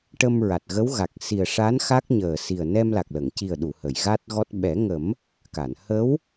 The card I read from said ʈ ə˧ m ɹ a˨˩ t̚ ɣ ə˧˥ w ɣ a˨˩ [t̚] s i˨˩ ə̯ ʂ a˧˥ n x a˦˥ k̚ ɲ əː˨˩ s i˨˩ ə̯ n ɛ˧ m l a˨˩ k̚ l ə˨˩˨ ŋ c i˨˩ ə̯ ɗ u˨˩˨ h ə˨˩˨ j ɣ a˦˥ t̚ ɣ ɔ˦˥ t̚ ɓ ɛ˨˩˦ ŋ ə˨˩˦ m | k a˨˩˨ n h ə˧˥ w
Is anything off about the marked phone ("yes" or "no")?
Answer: yes